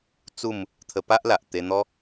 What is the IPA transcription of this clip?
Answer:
t͡su˥˧m | t̪ʰə˧pa˦ʔla˨ʔ t̪e˧n̪ɔ˦

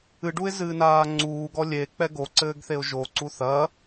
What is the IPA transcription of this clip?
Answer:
ɨɖuɪ̯zɨːnaː ŋ͡ǀuːɡɔ lʲek͡pɛ ɡoǀɘːɡθeʊ̯ ʒoǀu θɐ

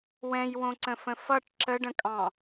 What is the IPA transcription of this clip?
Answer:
wɛ̃jwõǀə̃fə̃ fʌʈ ǁəɖə̃kʼɑ̃

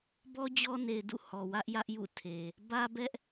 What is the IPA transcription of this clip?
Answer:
bɔ˦d͡ʑɔ˦ ne˨ɪ̯dṵ˦˨ hɔ˨wä˦ʔ jä˦ʔjṵ˦˨tʰe˨ | bä˦bɛ˦ʔ

